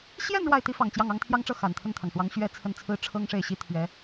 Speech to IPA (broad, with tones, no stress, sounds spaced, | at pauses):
ɕ j ɛ˥˧ n ɻ w a˥˩ ɪ̯ t̪ i˥ f ɑ˨˩ ŋ t͡ɕ j ɑ˥˩ ŋ ɑ˥ ŋ t̪ʰ j ɑ˥ ŋ ʈ͡ʂ ɤ˥˩ x a˨˩ n t̪ʰ ə˥˩ n t̪ʰ ɑ˩ ŋ ʂ w ɑ˧˥ ŋ ɕ ɥ ɛ˥ t͡sʰ ə˥˩ n t͡sʰ ɹ̩˥ ʈ͡ʂʰ ɤ˥ ŋ ʂ e˥˩ ɪ̯ ɕ i˥ t̪ʰ ɥ ɛ˧˥